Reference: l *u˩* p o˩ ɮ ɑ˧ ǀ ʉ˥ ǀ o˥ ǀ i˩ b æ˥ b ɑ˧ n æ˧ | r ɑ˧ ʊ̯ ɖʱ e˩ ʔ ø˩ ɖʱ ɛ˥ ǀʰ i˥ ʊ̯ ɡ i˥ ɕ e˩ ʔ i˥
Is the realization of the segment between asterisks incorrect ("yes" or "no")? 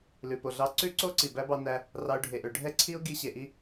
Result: yes